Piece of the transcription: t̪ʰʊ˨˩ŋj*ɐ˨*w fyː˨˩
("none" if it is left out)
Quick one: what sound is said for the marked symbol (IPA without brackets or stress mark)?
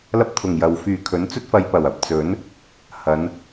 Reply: ɐ˨